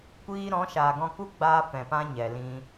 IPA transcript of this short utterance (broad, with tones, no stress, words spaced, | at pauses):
kʷiː˧ ɾɔ̃˨˦ʃaː˨ɡɔ̃˧ ku˦ɡ͡baː˧ fɛ̃˨pã˦ ɲɛ˨lĩ˧